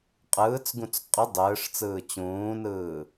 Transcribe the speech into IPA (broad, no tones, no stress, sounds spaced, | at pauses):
qʼ ɯː t͡s ɡ ũ t͡s qʼ ɯ dˤ ɯː ʂ t͡s ɯː t͡ɕ ũː n ɯː